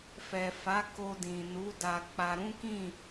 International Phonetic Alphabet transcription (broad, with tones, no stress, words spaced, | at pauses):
fɛ˨fa˨˦ ko˧dĩ˨ nu˨˦da˧k͡pa˧ ɾũ˦kĩ˦˨